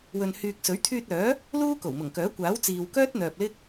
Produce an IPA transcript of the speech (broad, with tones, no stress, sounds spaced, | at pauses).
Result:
w ɵ˨ n h yː˨ k̚ s ɵ˨˥ ɥ t̪ʰ yː˧ t̚ œː˨˥ | l uː˥ k o˨˩ w m ʊ˨˩ ŋ k œː˨˥ kʷ aː˨˥ w t͡s iː˨ w k œː˥ t̚ n̪ œː˨ p̚ l ɪ˥ k̚